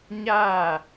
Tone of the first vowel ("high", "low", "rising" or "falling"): falling